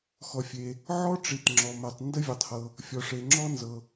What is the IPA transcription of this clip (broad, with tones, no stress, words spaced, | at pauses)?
xɔ˩fʲe˩ | ʕɔ˥ʈ͡ʂi˩t ŋ͡ǁɔ˩mɛ˩tˤ ndə˥vʲɜ˩tˤhɤ˩ | fʲɔ˩ʂe˩ŋ͡ǁɔ˥ nzɤ˩